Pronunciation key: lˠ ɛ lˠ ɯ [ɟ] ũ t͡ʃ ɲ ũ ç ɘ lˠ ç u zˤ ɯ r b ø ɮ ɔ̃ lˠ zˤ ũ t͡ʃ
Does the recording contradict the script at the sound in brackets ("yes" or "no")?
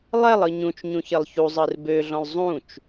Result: yes